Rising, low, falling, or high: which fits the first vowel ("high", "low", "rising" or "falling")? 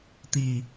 low